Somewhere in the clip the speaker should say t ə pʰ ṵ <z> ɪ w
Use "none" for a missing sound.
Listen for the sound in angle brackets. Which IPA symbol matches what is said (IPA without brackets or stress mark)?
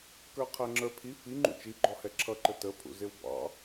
z